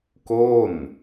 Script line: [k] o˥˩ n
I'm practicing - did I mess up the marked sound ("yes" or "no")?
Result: no